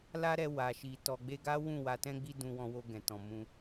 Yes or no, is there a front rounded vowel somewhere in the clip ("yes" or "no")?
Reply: no